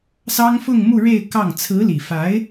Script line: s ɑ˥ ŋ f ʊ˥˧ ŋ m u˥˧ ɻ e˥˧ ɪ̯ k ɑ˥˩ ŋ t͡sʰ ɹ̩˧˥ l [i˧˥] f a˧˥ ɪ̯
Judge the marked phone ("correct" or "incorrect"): incorrect